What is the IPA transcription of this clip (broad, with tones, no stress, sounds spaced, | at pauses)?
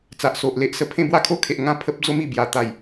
t͡s a˨ ʔ s o˨ ʔ l e˦ ʔ s ə˨˩ pʰ ẽ˥˧ b w a˥˧ kʰ o˥˧ kʰ e˨ ʔ ŋ ã˥˧ pʰ ə˦ p̚ d͡z o˦ m i˨˩ b j a˨˩ t̪ a˨˩ j